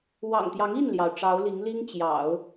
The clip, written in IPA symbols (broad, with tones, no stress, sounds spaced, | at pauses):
w ɑ̰˨˩ ŋ t̪ j ɑ˧˥ ŋ i˥˩ n l j ɑ˩ ʊ̯ ʈ͡ʂ ɑ˧˥ ʊ̯ l i˧˥ ŋ l i˥ ŋ t͡ɕ j ɑ̰˨˩˦ ʊ̯